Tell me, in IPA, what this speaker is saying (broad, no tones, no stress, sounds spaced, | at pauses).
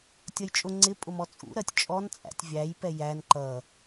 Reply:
tʲ ʌ j t͡ʃʼ ʊ ŋ͡ǀ ɪ pʼ ʊ m ɔ t͡sʼ ṵ ɾ ɜ tʲ t͡ʃʼ ɔ n t͡sʼ æ̰ tʲ vʲ æ j p ɛ j æ n ǃ ʌ